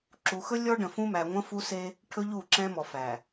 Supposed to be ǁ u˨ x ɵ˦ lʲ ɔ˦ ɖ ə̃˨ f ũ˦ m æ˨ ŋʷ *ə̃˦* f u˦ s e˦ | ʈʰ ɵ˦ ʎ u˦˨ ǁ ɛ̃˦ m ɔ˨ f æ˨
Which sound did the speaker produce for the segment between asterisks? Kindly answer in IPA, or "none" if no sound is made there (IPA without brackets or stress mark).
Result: ə̃˦